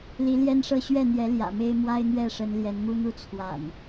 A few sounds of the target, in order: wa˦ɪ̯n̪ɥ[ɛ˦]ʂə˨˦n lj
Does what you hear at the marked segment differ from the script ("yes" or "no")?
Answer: yes